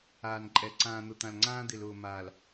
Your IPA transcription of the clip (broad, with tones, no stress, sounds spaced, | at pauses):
aː˨ n ǃʼ ɛ˨ ǀ ãː˨ n̪ ʊ˨ t̪ ã˨ l ŋ͡ǀ ãː˦ d̪ ɪ˨ l ʊː˨ m aː˨ l